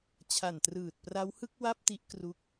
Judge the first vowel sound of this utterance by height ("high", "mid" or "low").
low